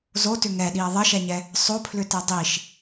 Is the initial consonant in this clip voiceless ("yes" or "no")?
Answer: no